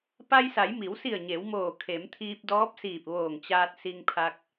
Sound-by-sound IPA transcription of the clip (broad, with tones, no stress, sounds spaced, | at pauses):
p a˧ j s a˩˧ j m i˩˧ w s i˧˩ ə̯ ɲ e˩˧ w m oː˧˩ kʰ e˩˧ m t̪ʰ iː˧ p̚ d ɔː˧˥ p̚ s iː˧˩ p̚ ʋ oː˧˩ ŋ t͡ɕ aː˧ t̚ s i˧ ŋ pʰ a˧ k̚